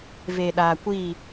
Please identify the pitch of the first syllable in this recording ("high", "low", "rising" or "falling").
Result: low